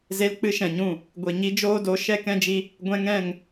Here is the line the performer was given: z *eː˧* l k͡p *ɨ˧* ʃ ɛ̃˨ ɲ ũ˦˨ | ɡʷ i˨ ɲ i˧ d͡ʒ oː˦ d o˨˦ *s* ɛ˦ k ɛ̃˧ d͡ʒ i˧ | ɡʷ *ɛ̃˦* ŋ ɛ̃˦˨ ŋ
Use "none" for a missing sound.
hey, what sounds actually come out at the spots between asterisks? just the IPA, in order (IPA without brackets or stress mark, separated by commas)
e˧, ɨ˧, ʃ, ɛ̃˧